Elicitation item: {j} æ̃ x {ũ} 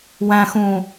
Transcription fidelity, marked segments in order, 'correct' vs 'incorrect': incorrect: w, correct

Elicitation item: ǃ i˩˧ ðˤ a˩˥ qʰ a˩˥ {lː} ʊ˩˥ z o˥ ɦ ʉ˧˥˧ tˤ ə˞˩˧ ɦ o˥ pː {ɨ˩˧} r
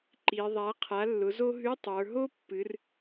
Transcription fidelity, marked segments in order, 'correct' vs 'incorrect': correct, correct

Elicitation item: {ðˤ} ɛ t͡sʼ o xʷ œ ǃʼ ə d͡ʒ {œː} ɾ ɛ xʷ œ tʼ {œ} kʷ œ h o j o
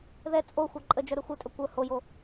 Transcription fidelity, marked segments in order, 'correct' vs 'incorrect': incorrect: ð, incorrect: œ, correct

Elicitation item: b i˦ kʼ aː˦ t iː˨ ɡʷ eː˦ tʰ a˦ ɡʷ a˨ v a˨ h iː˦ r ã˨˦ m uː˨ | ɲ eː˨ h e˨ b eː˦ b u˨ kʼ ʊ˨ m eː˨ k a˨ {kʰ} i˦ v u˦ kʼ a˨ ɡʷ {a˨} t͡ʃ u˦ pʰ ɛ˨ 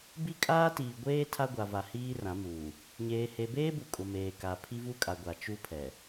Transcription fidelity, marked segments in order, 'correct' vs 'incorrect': incorrect: pʰ, correct

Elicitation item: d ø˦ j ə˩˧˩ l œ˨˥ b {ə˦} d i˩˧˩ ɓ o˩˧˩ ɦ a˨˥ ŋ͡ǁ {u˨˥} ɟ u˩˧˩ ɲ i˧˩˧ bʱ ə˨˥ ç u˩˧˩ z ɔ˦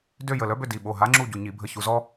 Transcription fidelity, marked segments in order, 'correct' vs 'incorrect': incorrect: ø˦, incorrect: u˦˨

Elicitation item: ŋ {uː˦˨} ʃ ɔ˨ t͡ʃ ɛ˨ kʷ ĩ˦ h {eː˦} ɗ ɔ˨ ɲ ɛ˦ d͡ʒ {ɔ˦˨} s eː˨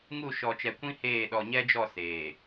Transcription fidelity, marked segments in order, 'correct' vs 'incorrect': incorrect: u˦˨, incorrect: eː˦˨, correct

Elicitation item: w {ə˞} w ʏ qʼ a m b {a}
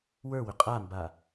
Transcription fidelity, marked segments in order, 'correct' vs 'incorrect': correct, correct

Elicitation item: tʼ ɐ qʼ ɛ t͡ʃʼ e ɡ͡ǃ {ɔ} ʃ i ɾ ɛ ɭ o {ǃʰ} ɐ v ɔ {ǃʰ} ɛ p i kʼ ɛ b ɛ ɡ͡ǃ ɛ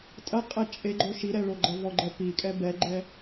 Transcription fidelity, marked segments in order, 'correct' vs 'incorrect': incorrect: o, incorrect: ɡ͡ǃ, incorrect: ɡ͡ǃ

